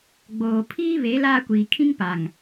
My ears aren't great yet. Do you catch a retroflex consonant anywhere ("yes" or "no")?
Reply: no